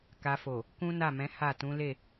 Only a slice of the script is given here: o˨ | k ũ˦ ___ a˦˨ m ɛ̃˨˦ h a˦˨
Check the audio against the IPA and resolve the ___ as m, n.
n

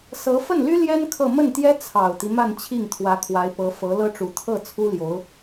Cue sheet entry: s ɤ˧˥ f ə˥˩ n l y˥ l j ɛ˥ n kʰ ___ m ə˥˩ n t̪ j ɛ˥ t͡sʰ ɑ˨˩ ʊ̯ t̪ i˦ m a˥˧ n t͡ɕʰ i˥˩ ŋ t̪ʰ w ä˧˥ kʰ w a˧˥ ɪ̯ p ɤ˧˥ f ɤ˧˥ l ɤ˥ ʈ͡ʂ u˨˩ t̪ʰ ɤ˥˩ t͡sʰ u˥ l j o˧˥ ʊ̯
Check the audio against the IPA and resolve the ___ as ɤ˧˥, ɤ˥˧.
ɤ˥˧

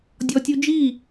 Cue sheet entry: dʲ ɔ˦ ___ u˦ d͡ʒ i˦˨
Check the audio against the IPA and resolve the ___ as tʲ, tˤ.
tʲ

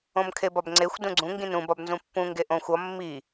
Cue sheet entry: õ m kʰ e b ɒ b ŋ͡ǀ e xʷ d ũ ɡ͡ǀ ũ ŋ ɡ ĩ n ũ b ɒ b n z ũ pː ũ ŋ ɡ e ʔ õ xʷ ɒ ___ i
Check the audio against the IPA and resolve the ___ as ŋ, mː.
mː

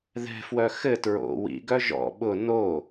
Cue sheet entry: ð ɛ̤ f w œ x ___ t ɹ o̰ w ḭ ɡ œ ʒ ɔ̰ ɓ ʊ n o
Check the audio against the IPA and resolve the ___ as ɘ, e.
ɘ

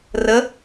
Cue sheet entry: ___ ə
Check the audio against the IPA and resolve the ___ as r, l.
r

